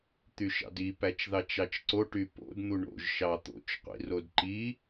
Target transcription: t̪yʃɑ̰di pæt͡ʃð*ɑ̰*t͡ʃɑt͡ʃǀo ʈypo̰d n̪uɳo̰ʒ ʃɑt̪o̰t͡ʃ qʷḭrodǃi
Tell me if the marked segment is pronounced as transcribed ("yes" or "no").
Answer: no